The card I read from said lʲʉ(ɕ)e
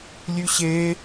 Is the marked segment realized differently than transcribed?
no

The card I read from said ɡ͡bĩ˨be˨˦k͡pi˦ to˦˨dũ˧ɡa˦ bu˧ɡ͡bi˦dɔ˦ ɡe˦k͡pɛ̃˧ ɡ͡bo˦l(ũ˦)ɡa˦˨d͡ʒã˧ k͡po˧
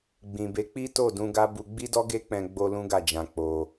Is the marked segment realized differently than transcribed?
no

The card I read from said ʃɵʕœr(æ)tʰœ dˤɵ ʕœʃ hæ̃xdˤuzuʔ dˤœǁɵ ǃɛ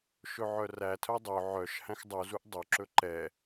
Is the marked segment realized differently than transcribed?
no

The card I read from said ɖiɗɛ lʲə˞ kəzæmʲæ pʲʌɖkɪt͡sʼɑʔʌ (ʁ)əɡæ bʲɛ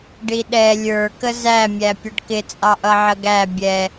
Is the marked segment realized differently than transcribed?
yes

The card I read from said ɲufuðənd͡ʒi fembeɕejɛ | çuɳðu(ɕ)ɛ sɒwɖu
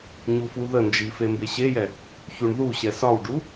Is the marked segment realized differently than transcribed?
no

